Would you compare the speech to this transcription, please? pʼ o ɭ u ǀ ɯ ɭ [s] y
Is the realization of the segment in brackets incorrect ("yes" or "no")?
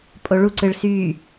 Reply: no